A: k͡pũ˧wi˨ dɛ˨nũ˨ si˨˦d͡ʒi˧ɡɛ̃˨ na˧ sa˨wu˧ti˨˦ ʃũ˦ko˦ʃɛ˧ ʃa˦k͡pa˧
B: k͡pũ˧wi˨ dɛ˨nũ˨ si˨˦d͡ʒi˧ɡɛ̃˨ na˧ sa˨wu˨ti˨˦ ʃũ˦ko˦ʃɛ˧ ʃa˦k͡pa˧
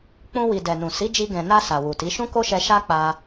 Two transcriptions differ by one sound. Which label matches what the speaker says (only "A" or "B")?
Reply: B